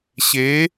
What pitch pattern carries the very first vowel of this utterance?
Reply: rising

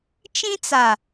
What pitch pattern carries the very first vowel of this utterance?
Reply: high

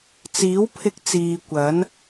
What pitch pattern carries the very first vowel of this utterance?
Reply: rising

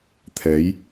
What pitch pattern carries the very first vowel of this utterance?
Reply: rising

